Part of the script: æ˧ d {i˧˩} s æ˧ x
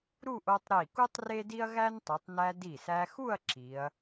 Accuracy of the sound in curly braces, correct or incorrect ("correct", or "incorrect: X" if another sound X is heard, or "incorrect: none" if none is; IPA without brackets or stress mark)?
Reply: correct